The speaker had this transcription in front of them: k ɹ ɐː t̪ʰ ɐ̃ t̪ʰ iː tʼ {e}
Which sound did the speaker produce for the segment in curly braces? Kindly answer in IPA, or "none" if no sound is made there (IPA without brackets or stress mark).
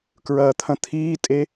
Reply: e